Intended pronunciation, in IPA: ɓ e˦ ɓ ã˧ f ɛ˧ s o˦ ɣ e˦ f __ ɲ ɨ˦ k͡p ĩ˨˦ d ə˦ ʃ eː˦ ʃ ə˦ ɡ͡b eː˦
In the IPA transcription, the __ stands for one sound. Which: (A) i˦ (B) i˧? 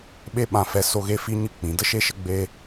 A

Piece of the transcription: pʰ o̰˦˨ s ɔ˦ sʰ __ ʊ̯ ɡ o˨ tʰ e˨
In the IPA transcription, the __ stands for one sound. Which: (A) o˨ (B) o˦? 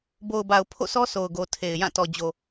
A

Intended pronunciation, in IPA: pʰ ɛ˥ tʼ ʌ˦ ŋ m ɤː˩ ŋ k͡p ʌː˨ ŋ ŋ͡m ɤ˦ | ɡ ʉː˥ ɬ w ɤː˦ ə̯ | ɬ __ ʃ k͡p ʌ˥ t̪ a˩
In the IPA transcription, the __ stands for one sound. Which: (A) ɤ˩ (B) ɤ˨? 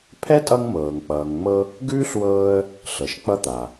A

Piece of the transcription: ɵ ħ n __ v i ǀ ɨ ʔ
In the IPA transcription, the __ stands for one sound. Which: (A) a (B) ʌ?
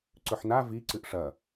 A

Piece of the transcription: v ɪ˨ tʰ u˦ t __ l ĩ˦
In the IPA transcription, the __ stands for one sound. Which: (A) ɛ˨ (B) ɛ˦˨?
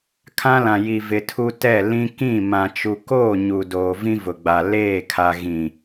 B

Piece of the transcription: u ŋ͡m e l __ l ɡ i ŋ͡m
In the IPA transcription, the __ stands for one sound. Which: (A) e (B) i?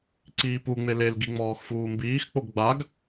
A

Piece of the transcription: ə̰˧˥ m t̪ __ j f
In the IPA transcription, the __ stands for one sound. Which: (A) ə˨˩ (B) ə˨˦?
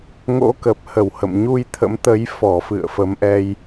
B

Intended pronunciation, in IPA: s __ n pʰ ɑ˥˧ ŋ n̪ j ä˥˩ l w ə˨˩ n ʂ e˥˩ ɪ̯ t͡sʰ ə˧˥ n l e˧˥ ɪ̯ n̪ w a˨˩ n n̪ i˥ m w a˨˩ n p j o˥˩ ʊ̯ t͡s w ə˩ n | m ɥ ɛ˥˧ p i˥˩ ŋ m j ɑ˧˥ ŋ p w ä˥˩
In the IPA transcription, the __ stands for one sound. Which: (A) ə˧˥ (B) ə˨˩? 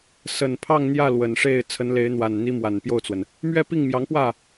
B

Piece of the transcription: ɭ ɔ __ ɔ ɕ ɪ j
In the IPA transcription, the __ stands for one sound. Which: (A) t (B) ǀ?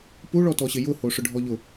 A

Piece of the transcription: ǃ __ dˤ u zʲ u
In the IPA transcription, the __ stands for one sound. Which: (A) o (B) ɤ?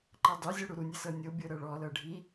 B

